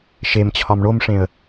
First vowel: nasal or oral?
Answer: oral